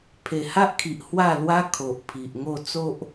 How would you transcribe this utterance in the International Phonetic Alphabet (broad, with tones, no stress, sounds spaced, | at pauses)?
pʰ e˨˩ h a˦ ʔ kʰ i˨ ʔ h w a˥˧ l w a˦ kʰ o˨ ʔ pʰ i˨ ʔ ŋ o˥˧ t͡s o˦ ʔ